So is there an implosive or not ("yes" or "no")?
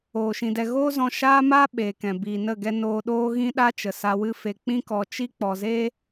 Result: yes